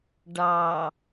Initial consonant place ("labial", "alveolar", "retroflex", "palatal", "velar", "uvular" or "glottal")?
retroflex